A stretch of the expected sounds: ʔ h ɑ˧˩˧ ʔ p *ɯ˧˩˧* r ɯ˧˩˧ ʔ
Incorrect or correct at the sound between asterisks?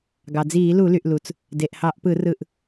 correct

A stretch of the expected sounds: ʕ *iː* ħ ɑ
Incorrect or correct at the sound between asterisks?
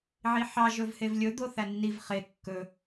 incorrect: i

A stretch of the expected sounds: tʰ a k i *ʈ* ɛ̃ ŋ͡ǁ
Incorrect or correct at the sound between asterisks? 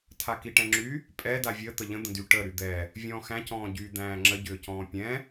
correct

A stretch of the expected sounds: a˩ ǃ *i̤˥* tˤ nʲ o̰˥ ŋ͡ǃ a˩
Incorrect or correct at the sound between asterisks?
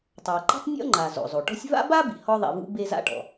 correct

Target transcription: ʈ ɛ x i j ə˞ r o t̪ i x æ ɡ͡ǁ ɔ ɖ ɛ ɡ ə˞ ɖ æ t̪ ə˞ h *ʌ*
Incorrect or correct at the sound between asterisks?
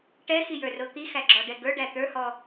incorrect: ɔ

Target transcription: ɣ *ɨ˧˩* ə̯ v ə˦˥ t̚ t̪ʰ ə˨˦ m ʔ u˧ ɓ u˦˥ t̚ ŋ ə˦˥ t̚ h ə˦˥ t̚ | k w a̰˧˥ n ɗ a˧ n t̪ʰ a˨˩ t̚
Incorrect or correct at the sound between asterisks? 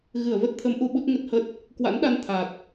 correct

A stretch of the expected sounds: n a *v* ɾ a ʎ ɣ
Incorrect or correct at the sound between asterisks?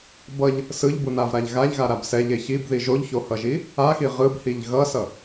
correct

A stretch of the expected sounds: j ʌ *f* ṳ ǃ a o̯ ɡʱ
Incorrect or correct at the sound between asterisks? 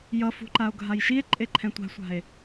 correct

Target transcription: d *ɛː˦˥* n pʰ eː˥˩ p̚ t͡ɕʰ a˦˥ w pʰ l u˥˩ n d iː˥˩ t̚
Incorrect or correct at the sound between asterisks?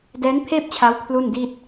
correct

